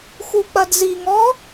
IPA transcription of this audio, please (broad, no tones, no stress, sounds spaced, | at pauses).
x u k͡p ɐ d z i ŋ ɔ